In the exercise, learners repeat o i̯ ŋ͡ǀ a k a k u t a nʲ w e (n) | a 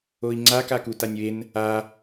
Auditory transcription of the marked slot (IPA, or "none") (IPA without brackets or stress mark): n